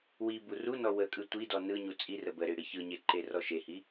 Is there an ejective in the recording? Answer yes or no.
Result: yes